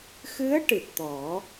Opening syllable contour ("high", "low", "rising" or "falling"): rising